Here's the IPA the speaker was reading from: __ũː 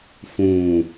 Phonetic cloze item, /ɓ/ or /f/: f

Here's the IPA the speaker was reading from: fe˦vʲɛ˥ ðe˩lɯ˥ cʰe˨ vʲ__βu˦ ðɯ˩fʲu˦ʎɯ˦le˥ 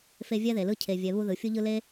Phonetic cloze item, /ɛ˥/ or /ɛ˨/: ɛ˨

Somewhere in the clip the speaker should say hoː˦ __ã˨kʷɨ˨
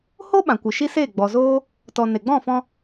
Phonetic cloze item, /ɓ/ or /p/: ɓ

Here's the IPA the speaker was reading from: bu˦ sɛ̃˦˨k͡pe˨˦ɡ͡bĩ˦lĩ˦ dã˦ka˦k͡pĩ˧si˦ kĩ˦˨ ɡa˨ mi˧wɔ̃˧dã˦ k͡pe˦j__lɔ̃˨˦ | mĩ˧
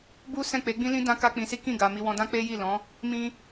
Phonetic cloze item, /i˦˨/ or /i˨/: i˦˨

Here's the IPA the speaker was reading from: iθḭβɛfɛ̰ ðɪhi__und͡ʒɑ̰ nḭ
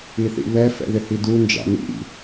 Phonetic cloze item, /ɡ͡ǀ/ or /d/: d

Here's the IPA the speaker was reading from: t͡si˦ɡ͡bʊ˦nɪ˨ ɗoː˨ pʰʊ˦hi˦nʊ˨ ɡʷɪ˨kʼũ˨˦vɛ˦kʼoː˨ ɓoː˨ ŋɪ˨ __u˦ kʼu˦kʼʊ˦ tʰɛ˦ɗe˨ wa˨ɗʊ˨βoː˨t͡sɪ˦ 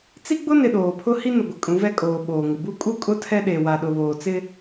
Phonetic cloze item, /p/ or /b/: b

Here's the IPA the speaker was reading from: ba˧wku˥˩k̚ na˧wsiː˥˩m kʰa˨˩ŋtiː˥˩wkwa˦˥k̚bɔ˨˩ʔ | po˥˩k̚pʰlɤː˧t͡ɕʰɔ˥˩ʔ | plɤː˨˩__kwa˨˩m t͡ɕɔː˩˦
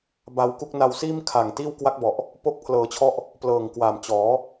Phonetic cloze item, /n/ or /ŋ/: ŋ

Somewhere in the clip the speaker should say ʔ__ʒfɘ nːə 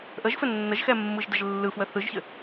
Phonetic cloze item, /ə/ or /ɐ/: ə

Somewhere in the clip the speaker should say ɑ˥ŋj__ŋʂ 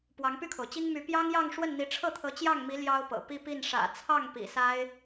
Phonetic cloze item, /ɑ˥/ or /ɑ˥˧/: ɑ˥˧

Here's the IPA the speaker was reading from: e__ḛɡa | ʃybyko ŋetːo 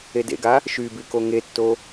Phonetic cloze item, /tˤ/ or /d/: d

